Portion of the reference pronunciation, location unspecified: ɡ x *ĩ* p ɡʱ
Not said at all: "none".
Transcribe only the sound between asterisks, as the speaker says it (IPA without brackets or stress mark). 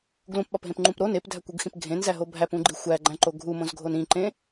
ĩ